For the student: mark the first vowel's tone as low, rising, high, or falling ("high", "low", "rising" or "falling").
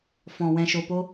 low